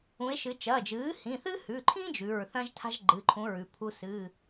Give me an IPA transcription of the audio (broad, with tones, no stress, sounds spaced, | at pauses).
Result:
ũ˩˧ e̯ ʃ ɨ˩˧ t͡ʃ ɐː˩˧˩ d͡ʒ ɨː˩˥ h ĩ˩˧˩ θ ɨ˥ h ʉ˩˧˩ ǃʰ ĩ˥ d͡ʒ ʉ˩˧˩ ɹ θ ɐ̃˥ ʒ tʰ a̤˥ ʒ ɡ͡ǃ ɨ˩˧˩ ǃʰ ũ˩˥ ɹ ʉ˩˥ pʰ u˥ s ɨ˩˧˩